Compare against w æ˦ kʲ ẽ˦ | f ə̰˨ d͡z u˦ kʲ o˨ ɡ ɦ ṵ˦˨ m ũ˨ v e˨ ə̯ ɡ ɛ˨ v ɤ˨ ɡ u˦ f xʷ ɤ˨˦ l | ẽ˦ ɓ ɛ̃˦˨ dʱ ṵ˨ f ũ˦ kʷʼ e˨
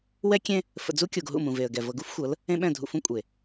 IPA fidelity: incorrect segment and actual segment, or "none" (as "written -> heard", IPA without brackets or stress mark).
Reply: æ˦ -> ɛ˦